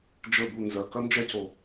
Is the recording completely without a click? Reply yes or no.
yes